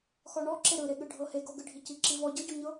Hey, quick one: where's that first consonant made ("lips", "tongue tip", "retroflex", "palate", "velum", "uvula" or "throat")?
velum